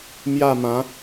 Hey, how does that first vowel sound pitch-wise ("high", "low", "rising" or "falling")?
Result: falling